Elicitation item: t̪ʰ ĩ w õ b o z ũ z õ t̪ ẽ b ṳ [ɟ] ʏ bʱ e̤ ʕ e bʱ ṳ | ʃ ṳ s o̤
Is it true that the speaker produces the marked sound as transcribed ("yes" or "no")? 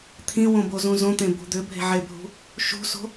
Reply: no